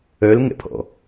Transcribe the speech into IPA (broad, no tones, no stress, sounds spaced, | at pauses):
œ l ŋ ɛ̰ pʰ ɔ̰